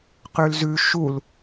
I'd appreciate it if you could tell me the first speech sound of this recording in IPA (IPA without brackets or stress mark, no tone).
q